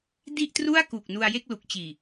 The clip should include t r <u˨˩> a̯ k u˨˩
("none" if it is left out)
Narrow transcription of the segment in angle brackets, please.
u˥˩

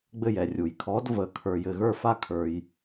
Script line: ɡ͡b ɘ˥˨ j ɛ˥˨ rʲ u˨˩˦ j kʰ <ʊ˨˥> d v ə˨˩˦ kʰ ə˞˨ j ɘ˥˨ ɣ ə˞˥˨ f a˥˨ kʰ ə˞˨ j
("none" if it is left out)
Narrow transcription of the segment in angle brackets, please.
ɔ˨˥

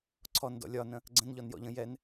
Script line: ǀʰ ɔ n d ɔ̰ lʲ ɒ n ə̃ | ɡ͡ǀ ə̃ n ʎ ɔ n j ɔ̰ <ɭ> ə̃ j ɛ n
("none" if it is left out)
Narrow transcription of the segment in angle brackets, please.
ʎ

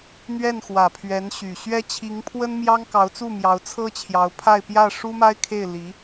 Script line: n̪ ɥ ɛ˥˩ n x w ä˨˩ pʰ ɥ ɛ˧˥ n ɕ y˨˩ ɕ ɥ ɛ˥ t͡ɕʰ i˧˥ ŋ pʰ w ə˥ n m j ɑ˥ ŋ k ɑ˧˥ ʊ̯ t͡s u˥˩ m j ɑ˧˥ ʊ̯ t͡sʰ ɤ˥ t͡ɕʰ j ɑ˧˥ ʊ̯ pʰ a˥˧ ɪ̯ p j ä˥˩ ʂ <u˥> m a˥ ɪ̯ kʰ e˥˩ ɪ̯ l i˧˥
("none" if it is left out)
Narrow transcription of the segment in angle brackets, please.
u˥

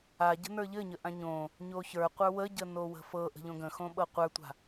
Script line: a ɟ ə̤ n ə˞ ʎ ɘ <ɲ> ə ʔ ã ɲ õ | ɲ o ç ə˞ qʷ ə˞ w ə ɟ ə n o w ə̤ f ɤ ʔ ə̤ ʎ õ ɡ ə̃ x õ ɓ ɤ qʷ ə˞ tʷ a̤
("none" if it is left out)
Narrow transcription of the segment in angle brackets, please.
ɲ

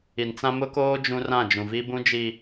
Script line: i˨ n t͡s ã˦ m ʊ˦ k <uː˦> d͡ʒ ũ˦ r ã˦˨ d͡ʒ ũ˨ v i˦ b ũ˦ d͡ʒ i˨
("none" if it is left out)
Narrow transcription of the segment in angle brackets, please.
oː˦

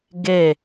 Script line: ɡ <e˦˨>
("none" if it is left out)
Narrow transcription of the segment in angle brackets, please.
e˦˨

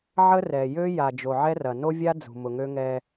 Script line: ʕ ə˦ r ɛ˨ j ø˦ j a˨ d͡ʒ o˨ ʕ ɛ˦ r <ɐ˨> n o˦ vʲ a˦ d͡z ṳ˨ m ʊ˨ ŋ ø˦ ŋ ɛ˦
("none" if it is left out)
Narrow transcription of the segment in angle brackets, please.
ɐ˨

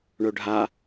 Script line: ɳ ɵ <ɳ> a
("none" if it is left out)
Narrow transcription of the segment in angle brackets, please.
ɖʱ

